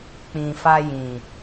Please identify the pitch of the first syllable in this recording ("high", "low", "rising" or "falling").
low